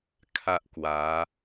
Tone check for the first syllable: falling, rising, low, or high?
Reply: high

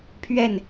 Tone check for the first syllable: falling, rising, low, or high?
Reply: falling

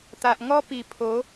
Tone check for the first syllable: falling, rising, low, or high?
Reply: low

